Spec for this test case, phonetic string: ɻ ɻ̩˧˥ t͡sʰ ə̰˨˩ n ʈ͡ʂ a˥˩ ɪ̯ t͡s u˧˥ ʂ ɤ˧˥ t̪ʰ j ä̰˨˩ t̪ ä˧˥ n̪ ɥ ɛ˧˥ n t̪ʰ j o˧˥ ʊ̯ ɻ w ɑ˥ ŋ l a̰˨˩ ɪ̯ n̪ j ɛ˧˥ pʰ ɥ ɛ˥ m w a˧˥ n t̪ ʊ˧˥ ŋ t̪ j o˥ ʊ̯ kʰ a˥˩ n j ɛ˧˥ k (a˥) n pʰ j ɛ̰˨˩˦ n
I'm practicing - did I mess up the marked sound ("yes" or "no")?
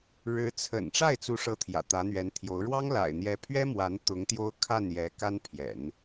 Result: no